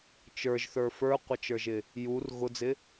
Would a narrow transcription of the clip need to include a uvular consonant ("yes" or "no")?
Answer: yes